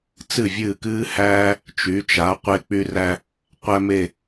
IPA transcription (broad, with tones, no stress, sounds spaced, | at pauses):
t͡s ɨ˥˩ vʲ ɨː˥˩ k ɨː˥ h æː˥ | t͡ʃ y˩˥ t͡ʃ a˩˥ qʷ e˧ k͡p y˧ r æ˧ | qʷ æ˥ m e˥˩